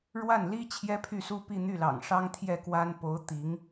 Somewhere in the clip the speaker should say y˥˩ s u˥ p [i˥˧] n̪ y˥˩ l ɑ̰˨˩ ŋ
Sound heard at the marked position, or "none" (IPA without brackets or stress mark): i˥˧